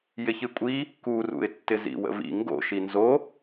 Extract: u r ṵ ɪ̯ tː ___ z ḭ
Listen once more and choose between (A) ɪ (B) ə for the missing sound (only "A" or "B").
A